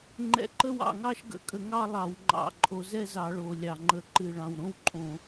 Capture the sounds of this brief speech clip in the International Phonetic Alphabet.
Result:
ŋ͡ǃɛ̰˧˩˧ǃə˥˧wɑ̰˨˩ŋɑ˥˧ʃ ɡə̰˨˩kʼə˧˩˧ŋɑ˥˧lˠɑ˧˩˧w ŋ͡ǃɑ̰˨˩ǃʼo˧˩˧ zɛ˥˧zɑ˧˩˧ɭo˨˩lʲɑ˨˩ ŋ͡ǃə˨˩ǃɨ˨˩ ɭɑ̃˨˩wɾõ˥˧wǃʼõ˧˩˧

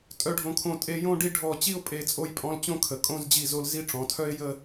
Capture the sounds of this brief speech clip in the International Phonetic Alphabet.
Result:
tʼœ˧ɖʱõ˧˩kʰõ˧˩ tʼe˧jõ˥˧ɖi˥˧ ɖʱɔ˧˩ t͡ɕi˥˧ʊ̯pʼe˧˩t͡sʼo˧jpʼɔ̃˧l t͡ɕõ˥kʰə˩˧kʼõ˥˧z d͡ʑi˧˩zo˧l zi˥ʈ͡ʂɔ̃˩˧tʰœ˥ɪ̯ jə˥˧

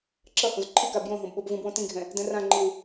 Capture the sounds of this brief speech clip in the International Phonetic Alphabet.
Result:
ǁʌhõz ǃʰika bjõɦõb ɓobvũbwõ tĩɡʱɛ̃ | dɛ̃rãŋ͡ǃiw

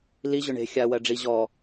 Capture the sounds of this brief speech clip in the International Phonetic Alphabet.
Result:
li ʑʊɳe̤ xʲa wɜɖ͡ʐi ʑɔ

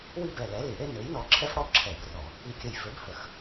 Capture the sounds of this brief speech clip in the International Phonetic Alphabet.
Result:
wi˥bɛ˧˩ lɛ˨˥li˧˩˧ɽe˥ nø˨˥jnɔ˧ ǁʰɛ˥fɽɔ˥ ǁʰɛ˧˩˧brɔ˧˩˧ | i˧˩kʲə˧˩j fø˨˥bhə˧˩˧x

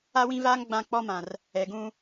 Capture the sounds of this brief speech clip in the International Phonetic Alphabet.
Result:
a˦wĩ˦vaː˦ŋ ɡ͡bã˦k͡pɔ˦mã˨r | ɛ˨ɡũ˦

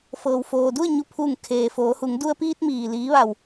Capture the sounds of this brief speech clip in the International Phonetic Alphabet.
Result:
fɤː˩wfoː˩du˥˨ə̯ɲu˧˩ pʰuː˧˩ŋkʰeː˩ foː˩˧hu˩˧ŋ du˧ə̯piː˧t̚miː˩ liː˩˧ʋa˩w

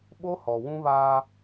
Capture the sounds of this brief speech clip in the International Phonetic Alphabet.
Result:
ɓo˦hɔ˨wũ˦βaː˦

